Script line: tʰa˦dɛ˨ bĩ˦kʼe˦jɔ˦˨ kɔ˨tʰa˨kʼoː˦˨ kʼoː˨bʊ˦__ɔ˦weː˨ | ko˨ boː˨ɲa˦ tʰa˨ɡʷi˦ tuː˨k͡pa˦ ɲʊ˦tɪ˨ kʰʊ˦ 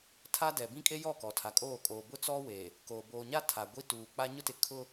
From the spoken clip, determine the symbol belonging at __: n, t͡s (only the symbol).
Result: t͡s